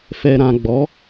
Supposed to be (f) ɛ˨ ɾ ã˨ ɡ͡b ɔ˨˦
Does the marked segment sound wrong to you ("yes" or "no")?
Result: no